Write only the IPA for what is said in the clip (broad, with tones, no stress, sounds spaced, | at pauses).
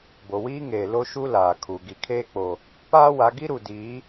b o˨ w iː˦ ŋ eː˨ l o˦ ʃ u˦ l aː˨ kʰ u˨ ɡ i˨ kʰ eː˦ k͡p o˨ | p aː˦ w a˨˦ ɡ i˦ ɾ u˨ d iː˨˦